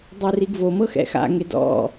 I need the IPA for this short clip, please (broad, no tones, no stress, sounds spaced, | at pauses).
dˤ ɯ r i ɡ v o m ɤ x ɛ̰ x a̰ ŋ e d ɔ̰